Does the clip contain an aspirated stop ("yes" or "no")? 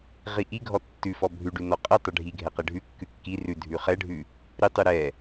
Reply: no